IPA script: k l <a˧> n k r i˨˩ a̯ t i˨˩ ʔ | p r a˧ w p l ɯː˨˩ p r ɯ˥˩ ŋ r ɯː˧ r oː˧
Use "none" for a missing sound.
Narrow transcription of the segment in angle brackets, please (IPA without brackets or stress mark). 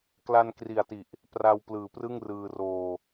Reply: a˧